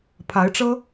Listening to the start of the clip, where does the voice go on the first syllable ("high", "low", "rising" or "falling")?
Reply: rising